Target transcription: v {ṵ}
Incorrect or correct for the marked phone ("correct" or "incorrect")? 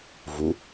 incorrect